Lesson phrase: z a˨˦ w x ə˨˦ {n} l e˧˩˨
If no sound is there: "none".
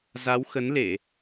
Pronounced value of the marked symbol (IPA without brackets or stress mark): n